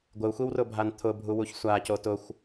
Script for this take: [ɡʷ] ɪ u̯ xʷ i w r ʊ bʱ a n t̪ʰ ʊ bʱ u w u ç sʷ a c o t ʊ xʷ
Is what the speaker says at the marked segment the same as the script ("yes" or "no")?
yes